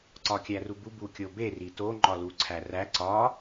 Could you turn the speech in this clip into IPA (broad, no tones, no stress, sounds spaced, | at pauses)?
ǀ ɒ kʲ æ r u b u b u kʲ o b e r i t o ŋ͡ǃ ɒ l u ǀʰ æ r æ ǀ ɒ